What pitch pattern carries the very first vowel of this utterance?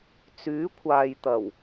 rising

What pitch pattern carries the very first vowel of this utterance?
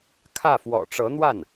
falling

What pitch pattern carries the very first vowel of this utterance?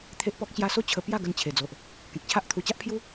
high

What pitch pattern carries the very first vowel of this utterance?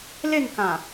falling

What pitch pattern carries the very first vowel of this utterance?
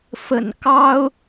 low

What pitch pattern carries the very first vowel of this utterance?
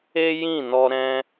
high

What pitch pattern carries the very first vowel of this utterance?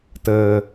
low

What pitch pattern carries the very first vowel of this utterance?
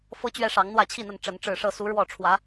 high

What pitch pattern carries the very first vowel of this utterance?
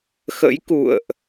rising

